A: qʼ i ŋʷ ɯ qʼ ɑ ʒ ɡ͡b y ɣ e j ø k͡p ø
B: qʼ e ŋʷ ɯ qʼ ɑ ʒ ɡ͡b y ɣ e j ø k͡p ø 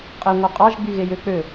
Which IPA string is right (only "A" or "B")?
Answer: B